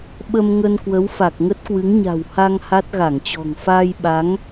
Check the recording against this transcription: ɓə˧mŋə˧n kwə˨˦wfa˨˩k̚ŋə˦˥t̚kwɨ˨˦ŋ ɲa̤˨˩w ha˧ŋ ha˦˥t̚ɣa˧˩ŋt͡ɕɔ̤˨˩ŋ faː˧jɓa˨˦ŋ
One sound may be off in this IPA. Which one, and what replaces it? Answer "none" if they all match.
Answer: none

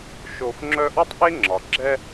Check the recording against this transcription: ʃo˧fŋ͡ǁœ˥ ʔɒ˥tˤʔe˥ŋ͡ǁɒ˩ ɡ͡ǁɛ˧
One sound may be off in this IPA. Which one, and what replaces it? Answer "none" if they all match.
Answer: none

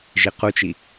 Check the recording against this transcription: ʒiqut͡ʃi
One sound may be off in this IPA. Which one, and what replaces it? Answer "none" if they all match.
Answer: none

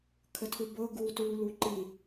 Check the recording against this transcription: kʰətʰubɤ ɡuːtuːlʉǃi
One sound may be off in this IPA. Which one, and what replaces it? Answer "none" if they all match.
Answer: ʉ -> u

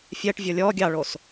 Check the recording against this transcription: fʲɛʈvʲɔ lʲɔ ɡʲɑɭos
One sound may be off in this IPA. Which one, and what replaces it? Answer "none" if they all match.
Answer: none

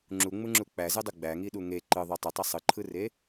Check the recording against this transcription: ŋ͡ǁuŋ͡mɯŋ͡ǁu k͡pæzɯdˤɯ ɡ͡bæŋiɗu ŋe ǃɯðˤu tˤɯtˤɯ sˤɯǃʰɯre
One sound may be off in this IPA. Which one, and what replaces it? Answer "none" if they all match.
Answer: none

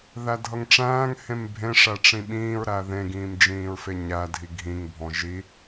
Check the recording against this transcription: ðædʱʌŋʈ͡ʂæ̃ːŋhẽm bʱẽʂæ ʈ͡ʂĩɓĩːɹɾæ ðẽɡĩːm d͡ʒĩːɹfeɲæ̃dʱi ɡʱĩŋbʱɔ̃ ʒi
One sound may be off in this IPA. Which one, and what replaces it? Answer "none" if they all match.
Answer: æ̃ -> æ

